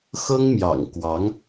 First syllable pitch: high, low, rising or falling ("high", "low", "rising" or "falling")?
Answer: high